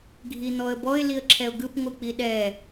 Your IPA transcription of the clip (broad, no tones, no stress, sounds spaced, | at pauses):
ɡʱ i n̪ ɔ ə̯ b ɔ ɪ̯ l i ə̯ ǁʰ ɛ ʊ̯ ɡ ɯ p ŋʷ ɯ k͡p i ɗ ɛ